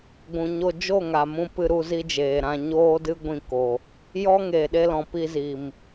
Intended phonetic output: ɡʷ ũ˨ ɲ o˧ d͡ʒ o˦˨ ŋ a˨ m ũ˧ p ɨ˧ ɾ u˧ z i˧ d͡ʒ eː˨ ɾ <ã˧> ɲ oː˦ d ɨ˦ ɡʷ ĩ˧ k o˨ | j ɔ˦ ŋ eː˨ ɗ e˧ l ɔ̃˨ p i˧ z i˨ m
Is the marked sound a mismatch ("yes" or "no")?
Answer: no